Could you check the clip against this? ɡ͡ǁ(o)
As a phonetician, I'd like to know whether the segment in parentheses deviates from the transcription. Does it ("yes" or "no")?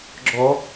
yes